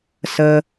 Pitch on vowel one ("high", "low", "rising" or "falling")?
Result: low